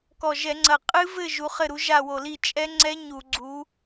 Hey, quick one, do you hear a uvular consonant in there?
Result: yes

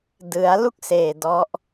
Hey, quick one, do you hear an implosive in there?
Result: no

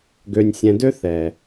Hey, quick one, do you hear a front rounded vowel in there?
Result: yes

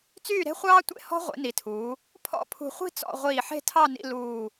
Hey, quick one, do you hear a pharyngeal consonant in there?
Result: yes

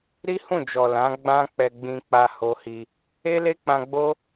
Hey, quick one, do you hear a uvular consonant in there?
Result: no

